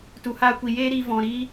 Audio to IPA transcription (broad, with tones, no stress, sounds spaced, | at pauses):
t u˨ h aː˧ kʷ i˨ j eː˦ ɾ i˧ v ɔ̃˨ ɾ i˦